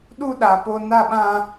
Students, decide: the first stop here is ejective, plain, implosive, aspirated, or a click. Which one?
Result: implosive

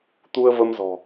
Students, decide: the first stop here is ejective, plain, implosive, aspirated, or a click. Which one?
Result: plain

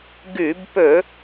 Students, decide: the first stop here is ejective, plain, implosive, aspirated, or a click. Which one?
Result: plain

